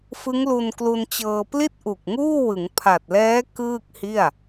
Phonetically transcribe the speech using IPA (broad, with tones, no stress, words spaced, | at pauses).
fɯ˦˥ŋlu˧nklu˧n t͡ɕɤː˧pli˥˩t̚ʔu˨˩k̚ŋuː˥˩ wɯ˩˦ŋpʰa˨˩t̚lɛː˦˥ kɯː˥˩k̚hi˥˩a̯